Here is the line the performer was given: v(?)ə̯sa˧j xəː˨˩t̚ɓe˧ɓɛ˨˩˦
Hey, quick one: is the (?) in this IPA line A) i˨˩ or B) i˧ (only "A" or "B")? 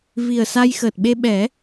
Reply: A